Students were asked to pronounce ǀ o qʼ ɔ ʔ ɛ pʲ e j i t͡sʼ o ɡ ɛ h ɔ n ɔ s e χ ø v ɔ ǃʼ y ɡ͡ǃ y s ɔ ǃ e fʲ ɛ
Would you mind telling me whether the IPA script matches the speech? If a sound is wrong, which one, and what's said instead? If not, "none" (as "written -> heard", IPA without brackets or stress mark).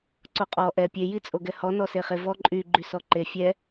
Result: ø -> e